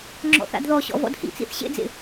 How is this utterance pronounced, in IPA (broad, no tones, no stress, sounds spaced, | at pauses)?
ŋ͡ǁ ɔ̰ θ a̰ d ð ɔ ɕ ɔ̰ v ɔ̰ d h ḭ t͡s ḭ θ ɕ ḛ d͡z ḛ